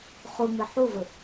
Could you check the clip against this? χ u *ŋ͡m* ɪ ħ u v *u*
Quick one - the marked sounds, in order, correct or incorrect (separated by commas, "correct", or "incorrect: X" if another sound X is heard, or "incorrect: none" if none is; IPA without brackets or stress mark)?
correct, incorrect: ɯ